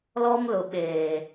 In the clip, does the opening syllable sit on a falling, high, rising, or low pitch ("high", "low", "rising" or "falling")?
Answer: high